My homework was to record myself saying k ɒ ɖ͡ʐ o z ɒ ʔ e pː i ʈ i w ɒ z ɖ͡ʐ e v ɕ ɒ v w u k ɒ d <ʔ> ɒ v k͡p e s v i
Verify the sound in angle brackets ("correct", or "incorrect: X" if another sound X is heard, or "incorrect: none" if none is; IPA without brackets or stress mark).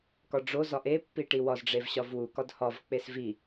incorrect: h